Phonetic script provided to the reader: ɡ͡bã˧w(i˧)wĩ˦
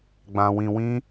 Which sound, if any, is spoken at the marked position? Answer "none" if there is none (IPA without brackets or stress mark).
ĩ˧